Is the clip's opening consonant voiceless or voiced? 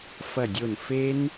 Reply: voiceless